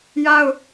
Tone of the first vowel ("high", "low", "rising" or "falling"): high